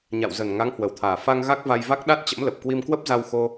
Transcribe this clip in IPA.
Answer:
ɲ a̰˧˨ w z ə˨˩ n ŋ a˨˦ ŋ h w ə˨˩ w t̪ʰ aː˨˩ f a˧ ŋ ɣ a˦˥ k̚ v a˧ j v a˦˥ k̚ ɗ a˦˥ t̚ t͡ɕ ə̰˧˥ m l ə˨˩ p̚ k w i˧ m k w ə˦˥ p̚ z a˧ w x o˧

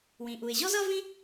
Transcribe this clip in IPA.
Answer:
w ĩ˩ ʔ u˩ ɪ̯ ʑ ɔ˥ z ʌ˥ v ĩ˥

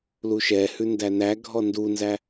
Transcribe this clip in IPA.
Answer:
l u ʃ ɛ h ʉ n d æ n æ ɡʱ ɔ n d u n z æ

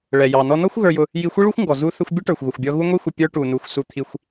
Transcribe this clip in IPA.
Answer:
ɭ ɛ˩ j ɑ˩ n ɔ˧ n ɔ˥ xʷ ɣ ə˞˧ j ʊ˧ | j i˧ xʷ i˥ ɭ u˥ xʷ ŋ ɡ ɔ˩ z u˧ θ ə˧ xʷ bʲ ʊ˥ ʈ ə˞˩ xʷ ɣ ʊ˩ xʷ bʲ ɔ˧ ɣ u˥ ŋʷ i˥ xʷ ɪ˧ pʲ ə˞˧ ʈ u˩ n u˩ xʷ s u˧ t̪ʰ i˧ xʷ

